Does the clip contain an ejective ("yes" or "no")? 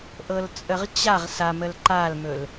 yes